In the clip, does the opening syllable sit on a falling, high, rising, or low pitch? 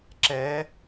rising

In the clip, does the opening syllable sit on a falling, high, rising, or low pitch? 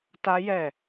high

